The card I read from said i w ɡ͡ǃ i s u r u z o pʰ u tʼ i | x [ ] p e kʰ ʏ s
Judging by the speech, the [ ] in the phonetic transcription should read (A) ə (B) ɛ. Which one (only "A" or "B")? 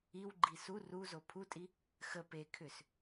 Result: A